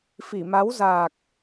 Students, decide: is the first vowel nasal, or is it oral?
oral